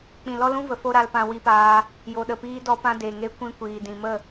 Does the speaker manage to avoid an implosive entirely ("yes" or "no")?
no